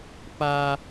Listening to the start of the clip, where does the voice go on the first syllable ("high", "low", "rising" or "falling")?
high